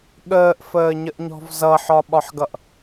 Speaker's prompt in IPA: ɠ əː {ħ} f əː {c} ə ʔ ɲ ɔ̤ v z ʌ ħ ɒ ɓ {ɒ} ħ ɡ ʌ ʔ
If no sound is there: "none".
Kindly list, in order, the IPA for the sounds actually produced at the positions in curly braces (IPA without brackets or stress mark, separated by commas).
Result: ʔ, ɲ, ɒ